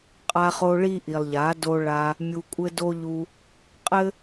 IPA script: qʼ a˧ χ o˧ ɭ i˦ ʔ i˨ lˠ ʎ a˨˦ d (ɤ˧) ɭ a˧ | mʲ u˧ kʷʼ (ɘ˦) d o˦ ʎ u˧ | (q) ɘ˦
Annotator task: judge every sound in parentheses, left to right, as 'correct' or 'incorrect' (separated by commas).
incorrect, correct, incorrect